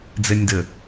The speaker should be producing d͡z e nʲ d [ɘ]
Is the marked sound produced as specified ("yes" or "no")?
yes